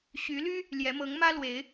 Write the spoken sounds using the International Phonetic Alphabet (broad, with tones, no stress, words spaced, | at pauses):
ɕy˨˦ly˦ | ljɛ˨˦mɤ˨˦ŋmä˦lwe˨˦ɪ̯